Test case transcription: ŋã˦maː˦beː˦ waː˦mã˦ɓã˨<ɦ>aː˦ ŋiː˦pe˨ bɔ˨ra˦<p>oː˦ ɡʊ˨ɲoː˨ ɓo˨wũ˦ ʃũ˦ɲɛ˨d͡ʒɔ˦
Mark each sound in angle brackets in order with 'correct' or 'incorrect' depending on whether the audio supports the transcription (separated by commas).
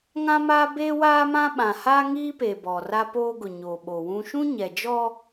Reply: incorrect, correct